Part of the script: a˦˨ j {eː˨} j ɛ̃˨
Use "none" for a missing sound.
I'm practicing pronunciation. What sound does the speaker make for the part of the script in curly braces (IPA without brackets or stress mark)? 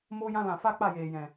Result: eː˨